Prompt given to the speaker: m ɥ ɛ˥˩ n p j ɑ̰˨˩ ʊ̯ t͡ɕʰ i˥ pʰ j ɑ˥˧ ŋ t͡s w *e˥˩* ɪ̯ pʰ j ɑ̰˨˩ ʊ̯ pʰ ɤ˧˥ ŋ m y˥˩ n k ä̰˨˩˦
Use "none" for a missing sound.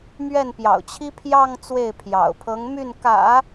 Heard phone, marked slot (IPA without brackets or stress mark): e˥˩